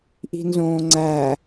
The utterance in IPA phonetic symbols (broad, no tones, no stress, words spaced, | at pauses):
ʔi̤nzõːŋ͡ǀæ